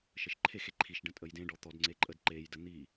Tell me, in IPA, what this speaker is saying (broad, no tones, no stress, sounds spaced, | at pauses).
ʃ ə ʃ ǃʰ e x e ǃʰ i ʃ ɖ ə̃ tʼ ə j d ẽ ɖ ɔ t̪ ɔ d ŋ͡ǀ e ǃʼ ə d ǃ e j d ə n̪ i